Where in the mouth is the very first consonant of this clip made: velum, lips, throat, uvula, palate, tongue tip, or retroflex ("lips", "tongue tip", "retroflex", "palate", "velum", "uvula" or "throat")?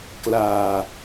velum